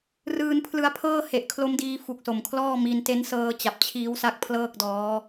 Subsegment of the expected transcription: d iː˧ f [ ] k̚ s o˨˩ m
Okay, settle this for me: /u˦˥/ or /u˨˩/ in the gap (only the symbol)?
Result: u˨˩